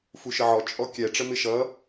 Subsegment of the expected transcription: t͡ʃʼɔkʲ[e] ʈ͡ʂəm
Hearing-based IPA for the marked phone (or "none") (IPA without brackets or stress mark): ɛ